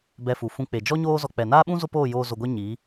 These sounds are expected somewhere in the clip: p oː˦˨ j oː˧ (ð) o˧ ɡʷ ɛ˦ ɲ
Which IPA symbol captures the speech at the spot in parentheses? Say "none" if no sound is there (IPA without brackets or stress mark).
z